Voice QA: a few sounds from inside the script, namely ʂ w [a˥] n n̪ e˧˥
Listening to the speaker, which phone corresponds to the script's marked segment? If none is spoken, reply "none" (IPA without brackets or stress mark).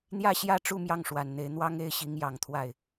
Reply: a˨˩